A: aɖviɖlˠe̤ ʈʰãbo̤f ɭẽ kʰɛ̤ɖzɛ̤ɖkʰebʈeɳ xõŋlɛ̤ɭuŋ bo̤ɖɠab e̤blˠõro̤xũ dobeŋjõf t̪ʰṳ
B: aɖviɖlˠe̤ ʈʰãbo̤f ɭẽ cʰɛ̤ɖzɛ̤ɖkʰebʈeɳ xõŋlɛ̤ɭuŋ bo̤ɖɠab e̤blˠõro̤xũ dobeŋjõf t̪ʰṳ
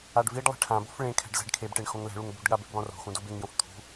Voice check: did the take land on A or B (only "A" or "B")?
A